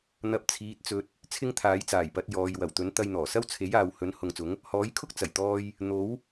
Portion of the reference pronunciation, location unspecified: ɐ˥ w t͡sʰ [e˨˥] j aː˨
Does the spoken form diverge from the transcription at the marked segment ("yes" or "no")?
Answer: no